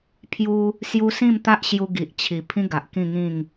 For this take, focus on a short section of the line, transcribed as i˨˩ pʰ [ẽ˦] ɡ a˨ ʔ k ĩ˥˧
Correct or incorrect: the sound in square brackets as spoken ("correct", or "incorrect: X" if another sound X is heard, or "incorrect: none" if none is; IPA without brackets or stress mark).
incorrect: ĩ˦